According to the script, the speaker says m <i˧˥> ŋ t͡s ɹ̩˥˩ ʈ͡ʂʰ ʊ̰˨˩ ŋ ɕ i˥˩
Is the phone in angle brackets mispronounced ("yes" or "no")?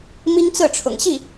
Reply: yes